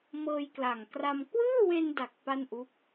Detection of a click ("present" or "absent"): absent